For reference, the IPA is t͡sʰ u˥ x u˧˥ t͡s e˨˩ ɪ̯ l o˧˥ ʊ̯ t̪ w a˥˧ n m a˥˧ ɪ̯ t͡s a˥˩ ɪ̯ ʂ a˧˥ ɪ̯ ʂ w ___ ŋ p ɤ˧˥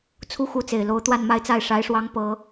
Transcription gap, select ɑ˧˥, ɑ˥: ɑ˧˥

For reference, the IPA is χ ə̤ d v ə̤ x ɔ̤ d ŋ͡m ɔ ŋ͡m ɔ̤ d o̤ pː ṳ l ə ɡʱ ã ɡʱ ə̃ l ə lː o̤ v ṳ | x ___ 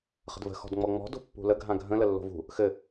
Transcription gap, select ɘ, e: ɘ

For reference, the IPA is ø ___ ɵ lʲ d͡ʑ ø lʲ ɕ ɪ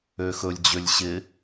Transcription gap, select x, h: x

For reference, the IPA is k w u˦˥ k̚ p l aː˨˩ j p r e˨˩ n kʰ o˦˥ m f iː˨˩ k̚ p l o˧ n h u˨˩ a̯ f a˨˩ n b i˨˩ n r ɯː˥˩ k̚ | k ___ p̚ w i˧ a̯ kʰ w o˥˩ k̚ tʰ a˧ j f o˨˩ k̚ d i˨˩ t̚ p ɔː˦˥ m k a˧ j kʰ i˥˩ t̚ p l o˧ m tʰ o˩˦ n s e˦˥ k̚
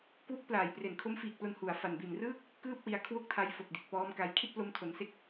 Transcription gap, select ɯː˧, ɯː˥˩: ɯː˥˩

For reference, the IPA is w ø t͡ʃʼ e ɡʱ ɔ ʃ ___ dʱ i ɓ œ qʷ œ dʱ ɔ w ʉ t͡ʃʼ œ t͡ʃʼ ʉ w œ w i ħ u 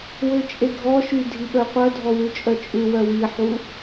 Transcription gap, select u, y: y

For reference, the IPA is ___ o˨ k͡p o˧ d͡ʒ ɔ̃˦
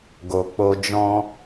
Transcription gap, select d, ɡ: ɡ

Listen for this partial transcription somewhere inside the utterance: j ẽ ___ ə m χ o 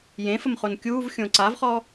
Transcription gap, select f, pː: f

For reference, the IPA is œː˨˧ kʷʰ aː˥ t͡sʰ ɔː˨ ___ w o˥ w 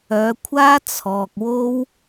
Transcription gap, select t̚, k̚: k̚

